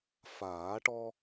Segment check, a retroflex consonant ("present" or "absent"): present